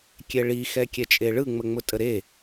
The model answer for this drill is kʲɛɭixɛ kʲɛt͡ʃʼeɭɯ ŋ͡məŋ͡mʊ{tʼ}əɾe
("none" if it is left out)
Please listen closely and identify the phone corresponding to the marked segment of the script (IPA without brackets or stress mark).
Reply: tʼ